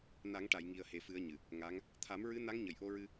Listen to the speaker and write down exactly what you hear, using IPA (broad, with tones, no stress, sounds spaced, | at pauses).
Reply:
n a˨˩˦ ŋ ʈ a˨˩˨ j ŋ i˨˩ ə̯ h e˨˩ f ɨ˨˩˦ ə̯ ɲ ɨ˨˩ | ŋ a˧˥ ŋ | t̪ʰ a˨˩˦ m ɹ ɨ˧˥ n a˧˥ ŋ ɲ ə˨˩ j ʔ o˧ ɹ ɨ˧